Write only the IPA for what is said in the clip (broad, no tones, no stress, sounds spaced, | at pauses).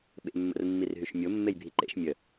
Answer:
ɓ ḛ mː ə̰ r mː i r ɦ y ʃ mʲ o mː e j bʱ i ǃ ḛ ʃ mʲ ə